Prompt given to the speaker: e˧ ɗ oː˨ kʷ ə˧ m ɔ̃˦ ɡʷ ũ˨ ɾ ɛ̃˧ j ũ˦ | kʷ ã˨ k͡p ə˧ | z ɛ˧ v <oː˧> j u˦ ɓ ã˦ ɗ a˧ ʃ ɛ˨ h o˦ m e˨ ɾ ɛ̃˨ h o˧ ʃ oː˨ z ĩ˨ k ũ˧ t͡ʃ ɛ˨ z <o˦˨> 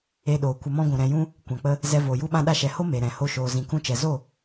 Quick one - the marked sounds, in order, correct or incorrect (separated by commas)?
incorrect, correct